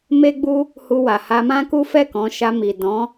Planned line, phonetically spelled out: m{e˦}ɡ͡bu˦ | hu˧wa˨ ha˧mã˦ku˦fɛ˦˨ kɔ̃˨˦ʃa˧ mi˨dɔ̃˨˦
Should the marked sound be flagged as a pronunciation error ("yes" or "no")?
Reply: no